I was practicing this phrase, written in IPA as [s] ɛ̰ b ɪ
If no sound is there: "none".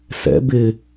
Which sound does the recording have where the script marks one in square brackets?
s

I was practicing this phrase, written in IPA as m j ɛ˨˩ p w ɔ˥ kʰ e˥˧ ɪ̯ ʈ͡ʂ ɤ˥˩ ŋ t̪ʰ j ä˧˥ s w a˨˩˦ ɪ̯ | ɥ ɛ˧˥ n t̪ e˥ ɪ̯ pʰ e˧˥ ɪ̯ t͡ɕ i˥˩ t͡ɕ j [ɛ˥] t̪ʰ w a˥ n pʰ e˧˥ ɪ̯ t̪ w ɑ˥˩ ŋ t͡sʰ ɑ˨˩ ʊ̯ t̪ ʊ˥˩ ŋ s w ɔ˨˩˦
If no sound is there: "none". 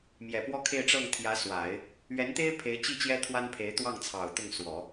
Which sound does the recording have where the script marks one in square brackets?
ɛ˥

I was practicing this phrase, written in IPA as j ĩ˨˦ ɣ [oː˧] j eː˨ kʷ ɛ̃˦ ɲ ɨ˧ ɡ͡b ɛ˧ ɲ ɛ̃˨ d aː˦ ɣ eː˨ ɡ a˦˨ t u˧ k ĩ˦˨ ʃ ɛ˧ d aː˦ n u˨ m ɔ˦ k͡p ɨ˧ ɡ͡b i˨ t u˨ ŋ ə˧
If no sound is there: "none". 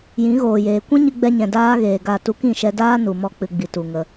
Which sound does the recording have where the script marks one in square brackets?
oː˨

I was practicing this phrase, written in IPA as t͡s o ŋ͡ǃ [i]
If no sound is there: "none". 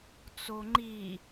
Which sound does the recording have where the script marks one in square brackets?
i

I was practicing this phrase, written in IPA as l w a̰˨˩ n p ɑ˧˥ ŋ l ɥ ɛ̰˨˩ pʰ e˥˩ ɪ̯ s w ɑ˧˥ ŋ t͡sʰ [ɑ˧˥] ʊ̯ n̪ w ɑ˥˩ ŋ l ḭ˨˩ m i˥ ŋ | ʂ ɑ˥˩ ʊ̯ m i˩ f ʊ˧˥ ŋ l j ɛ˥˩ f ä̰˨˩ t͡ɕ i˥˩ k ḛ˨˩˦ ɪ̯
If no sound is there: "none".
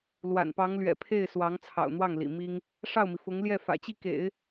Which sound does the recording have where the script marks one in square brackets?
ɑ̰˨˩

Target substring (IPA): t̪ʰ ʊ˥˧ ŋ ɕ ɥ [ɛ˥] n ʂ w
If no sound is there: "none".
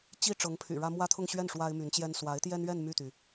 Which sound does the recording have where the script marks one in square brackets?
ɛ˥˩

